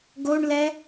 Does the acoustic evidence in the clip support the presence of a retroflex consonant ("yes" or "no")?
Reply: yes